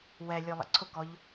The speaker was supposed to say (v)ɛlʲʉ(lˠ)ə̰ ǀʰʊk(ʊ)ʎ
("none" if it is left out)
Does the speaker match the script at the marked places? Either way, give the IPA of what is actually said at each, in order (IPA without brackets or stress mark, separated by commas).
w, lˠ, ɔ